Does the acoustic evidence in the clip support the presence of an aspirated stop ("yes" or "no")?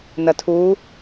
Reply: yes